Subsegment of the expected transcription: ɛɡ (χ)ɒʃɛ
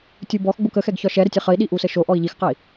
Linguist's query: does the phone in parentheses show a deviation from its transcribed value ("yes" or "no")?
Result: yes